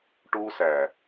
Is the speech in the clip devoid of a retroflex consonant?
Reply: no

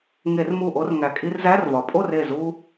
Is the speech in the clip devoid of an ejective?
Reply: no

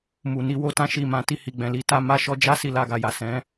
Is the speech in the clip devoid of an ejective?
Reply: yes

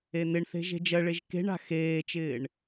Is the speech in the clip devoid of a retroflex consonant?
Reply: no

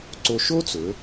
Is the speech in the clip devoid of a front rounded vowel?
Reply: yes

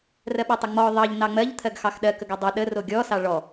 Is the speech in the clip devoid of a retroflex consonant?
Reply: no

